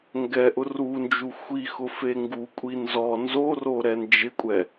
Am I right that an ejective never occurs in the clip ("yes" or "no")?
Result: no